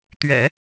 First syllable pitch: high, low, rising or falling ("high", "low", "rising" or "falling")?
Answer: low